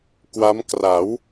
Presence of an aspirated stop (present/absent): absent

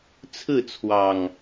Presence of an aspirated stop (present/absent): present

